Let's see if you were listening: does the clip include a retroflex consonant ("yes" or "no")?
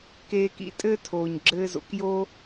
no